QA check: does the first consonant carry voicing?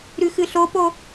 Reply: yes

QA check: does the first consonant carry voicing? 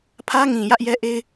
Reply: no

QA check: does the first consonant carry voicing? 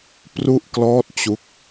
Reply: no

